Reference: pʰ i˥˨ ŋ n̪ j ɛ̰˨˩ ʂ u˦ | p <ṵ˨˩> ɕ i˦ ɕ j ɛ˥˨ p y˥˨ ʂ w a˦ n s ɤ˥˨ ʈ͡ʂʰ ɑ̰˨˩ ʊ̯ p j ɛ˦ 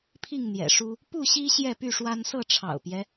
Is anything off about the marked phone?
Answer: yes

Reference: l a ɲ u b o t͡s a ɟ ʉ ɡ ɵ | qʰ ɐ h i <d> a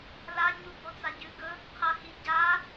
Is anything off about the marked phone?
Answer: yes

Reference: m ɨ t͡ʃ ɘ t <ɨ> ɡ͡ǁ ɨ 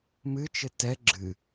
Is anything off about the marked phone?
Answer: yes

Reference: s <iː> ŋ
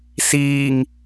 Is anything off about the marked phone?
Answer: no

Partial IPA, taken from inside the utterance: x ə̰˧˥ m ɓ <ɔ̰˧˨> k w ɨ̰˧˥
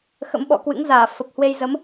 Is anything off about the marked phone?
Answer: no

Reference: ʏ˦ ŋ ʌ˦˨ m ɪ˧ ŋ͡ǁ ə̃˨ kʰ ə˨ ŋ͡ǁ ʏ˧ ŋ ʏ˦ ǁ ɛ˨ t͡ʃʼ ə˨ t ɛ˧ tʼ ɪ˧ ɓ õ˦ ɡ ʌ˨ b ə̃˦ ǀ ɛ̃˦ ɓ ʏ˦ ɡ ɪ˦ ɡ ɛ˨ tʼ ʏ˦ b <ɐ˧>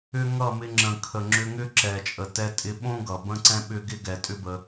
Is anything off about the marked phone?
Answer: yes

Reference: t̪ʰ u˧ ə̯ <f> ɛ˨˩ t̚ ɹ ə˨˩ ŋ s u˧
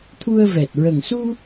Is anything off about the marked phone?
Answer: yes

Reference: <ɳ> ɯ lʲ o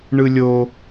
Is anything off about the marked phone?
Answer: no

